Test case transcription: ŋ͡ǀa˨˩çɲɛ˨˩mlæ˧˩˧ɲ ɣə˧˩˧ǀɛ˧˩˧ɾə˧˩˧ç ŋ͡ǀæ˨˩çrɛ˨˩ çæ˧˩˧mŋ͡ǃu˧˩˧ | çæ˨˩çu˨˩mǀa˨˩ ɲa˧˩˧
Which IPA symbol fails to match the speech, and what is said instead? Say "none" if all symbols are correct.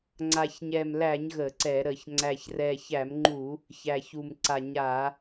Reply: none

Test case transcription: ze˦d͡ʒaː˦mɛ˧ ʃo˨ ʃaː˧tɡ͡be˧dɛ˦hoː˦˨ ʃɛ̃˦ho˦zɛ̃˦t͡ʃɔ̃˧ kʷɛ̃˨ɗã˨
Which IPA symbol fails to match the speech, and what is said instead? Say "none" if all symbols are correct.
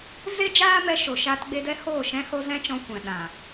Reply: none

